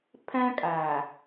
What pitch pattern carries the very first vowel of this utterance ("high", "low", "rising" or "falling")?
high